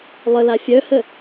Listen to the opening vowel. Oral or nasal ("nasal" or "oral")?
oral